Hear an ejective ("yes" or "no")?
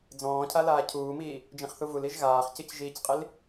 yes